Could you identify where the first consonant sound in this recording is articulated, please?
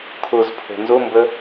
velar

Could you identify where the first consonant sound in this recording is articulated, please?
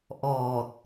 glottal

